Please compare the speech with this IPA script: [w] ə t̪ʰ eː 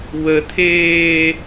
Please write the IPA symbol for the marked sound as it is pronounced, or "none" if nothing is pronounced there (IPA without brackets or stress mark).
w